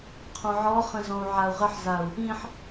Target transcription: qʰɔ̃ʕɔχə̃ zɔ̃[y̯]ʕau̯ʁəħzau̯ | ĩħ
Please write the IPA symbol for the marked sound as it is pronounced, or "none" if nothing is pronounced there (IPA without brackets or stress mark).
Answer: u̯